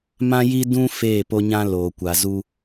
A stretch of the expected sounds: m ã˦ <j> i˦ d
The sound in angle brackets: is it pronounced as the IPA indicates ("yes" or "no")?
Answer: yes